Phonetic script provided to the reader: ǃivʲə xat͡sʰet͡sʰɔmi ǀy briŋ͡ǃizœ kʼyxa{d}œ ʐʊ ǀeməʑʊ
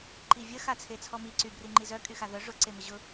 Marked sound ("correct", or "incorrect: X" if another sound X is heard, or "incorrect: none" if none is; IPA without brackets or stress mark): incorrect: ð